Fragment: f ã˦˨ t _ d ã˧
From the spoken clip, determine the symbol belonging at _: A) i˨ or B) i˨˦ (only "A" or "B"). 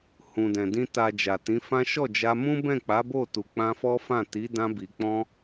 B